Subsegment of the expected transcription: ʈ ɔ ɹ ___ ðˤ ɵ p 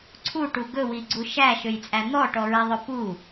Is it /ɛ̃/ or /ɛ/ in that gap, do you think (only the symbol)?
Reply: ɛ